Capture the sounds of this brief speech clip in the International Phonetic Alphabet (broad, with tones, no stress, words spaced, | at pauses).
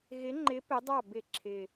ɣɪ˨˥ŋ͡ǃɪ˨˥ pɪ˨˥dˤɑ˥˩ bɪ˧˩˧ ǁʰɪ˨˩